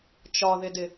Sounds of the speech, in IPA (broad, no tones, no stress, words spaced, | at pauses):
t͡ʃɒðɪdɪ